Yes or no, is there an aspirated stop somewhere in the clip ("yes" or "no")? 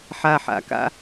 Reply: no